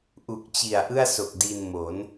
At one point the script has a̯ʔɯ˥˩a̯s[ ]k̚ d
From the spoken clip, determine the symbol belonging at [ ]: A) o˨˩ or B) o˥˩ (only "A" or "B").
A